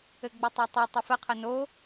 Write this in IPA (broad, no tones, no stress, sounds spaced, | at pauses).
ɘ ɡ͡b ə tˤ ø tˤ e tˤ ɵ f ə qʰ ə n o